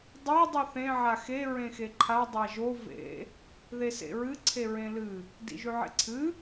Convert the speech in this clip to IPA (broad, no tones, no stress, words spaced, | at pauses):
dˤe dˤuθẽ ʕaxe ɹẽxeǃʰa dˤaʒo vḛ | ðesḛɹɨ ǀʰeɹẽlɨ | dḭʒʉʕḛǀʰɨ